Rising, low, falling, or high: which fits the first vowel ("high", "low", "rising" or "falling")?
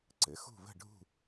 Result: rising